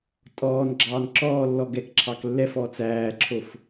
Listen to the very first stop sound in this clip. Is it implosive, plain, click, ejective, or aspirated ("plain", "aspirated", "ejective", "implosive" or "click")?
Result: ejective